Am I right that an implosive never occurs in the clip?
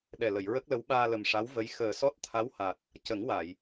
no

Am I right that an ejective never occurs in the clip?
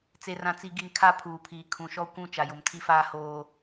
yes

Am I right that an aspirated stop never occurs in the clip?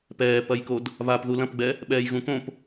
yes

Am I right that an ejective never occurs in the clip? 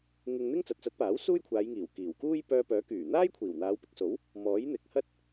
yes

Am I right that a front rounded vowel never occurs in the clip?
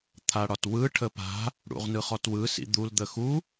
yes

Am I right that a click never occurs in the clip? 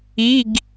yes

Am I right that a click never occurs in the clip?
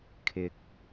yes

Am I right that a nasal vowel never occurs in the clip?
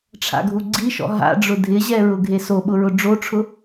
yes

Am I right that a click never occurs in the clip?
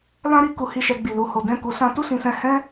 yes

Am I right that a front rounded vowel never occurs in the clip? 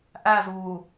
yes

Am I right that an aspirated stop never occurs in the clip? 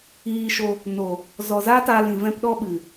yes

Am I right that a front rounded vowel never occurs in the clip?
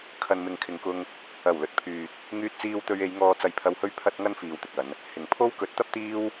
no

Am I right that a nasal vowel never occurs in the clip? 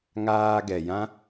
no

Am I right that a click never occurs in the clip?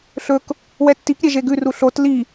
yes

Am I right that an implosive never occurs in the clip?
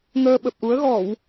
no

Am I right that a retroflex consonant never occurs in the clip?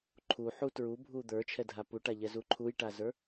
no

